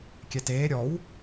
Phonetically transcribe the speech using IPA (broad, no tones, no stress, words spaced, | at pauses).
kʲɛteː ɾʲɔw